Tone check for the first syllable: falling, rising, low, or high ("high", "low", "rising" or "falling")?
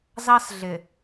high